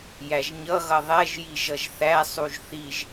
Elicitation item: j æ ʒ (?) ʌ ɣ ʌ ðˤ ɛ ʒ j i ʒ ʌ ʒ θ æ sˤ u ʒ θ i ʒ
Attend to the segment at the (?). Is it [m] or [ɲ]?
ɲ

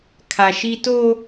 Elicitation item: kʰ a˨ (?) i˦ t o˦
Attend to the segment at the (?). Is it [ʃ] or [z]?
ʃ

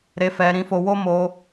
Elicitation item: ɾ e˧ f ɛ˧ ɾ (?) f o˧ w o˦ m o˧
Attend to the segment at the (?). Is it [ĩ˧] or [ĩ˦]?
ĩ˧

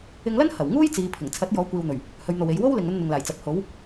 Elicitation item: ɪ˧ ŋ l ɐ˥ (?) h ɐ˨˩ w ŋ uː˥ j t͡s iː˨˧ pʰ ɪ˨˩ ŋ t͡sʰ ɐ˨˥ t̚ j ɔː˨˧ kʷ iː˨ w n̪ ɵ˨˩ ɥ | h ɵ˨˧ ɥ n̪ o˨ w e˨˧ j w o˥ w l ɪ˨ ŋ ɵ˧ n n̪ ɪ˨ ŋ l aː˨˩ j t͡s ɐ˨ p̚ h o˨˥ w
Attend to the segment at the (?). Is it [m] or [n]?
n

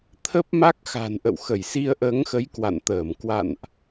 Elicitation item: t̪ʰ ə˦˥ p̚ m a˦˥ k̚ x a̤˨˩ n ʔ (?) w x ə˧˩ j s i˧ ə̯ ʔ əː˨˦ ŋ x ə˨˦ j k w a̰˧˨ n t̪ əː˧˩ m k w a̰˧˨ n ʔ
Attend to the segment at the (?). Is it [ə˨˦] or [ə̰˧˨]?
ə̰˧˨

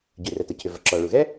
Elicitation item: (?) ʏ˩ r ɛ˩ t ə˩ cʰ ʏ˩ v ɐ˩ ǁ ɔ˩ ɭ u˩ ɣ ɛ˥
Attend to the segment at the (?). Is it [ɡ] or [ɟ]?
ɟ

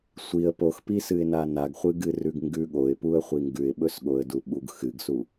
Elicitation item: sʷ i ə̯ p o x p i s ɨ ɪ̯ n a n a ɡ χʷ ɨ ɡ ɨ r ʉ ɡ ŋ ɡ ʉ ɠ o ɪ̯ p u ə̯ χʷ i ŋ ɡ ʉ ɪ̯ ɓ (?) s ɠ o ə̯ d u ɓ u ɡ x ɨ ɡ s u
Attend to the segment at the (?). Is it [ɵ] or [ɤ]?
ɵ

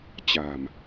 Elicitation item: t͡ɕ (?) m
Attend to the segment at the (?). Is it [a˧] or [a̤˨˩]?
a̤˨˩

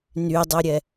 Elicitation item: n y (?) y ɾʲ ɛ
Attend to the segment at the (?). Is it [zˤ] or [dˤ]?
dˤ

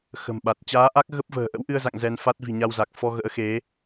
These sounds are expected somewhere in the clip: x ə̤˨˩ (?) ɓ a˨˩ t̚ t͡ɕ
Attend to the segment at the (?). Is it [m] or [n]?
m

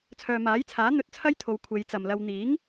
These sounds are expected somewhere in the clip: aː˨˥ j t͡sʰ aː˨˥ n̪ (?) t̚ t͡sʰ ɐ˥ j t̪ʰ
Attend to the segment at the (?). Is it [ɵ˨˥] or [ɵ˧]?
ɵ˧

